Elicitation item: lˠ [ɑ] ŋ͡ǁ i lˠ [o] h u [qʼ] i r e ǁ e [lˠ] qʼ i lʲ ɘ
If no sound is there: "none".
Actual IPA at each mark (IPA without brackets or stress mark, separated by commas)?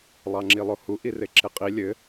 ɑ, o, ʔ, none